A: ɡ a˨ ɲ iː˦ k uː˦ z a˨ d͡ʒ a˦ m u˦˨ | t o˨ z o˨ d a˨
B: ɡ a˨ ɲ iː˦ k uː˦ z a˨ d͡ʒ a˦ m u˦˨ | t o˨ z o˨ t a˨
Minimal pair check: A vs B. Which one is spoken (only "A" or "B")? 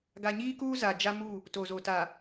B